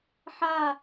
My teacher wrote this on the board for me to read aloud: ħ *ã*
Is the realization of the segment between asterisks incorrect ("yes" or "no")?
yes